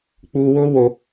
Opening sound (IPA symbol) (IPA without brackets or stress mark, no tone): k͡p